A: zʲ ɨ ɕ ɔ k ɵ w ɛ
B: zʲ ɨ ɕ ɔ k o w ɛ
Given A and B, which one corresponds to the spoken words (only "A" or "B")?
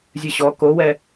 B